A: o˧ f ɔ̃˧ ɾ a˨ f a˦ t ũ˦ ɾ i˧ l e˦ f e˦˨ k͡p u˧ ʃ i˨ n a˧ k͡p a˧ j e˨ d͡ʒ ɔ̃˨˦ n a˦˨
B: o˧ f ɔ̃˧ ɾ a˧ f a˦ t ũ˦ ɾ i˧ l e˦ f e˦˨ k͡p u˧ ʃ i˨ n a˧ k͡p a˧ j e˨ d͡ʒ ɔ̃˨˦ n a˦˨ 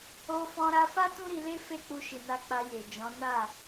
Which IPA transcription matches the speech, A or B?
B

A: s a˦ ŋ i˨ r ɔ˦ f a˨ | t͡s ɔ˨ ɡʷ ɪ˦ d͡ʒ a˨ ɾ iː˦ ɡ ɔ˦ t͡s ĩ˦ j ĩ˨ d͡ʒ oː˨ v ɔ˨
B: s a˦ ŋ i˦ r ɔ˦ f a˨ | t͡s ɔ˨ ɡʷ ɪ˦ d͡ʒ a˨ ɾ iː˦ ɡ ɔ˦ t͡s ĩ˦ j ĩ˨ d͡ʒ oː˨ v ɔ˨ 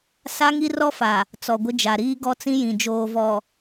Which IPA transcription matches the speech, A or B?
B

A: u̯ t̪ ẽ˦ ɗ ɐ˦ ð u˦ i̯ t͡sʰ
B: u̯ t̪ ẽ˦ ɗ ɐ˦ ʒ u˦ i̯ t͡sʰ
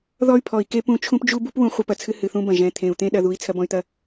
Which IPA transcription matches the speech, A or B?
A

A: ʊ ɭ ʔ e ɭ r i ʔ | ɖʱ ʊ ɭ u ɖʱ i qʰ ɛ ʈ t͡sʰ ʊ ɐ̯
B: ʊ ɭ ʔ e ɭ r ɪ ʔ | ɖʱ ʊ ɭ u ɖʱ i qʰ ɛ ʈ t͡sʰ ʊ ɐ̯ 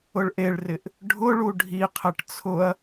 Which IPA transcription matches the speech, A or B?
B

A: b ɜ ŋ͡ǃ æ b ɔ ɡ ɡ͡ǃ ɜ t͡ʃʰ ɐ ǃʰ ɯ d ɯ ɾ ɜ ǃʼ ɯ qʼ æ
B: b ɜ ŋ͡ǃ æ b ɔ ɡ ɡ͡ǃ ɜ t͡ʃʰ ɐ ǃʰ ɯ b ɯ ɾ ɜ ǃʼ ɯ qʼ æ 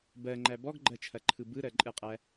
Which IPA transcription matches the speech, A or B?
B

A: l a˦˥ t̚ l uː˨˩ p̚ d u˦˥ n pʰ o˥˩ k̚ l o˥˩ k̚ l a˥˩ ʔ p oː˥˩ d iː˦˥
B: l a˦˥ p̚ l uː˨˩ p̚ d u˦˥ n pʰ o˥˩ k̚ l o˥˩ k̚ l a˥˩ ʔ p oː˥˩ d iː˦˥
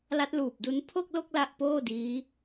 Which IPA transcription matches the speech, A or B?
A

